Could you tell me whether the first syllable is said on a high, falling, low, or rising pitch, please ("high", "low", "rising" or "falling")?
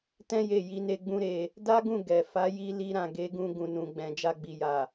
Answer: high